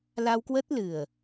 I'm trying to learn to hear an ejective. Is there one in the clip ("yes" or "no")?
no